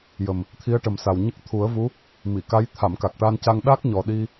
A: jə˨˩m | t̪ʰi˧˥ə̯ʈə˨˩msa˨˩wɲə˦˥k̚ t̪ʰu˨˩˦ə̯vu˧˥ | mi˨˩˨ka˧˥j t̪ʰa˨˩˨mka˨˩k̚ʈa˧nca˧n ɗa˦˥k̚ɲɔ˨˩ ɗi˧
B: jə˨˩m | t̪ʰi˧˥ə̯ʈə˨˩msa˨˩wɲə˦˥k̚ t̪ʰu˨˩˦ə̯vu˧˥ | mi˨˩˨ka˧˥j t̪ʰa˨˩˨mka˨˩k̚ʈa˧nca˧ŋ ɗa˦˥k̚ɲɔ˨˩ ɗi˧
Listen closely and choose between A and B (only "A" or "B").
B